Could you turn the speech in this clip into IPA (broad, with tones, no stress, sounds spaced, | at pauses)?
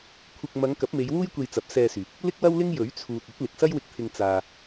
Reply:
kʷʰ ɪ˧ k̚ m ɐ˨˧ ŋ k ɐ˨˥ p̚ m e˨˧ j w uː˥ j kʷ e˧ j t͡s ɐ˨˥ p̚ s ɛː˧ s yː˨ k̚ | l ɪ˥ k̚ w ɐ˥ w l ɪ˥ ŋ j ɵ˨˥ ɥ t͡sʰ uː˨ t̚ ɵ˨˥ t̚ l ɪ˨ k̚ s ɐ˥ j w ɪ˧ k̚ t̪ʰ ɪ˧ ŋ t͡s aː˨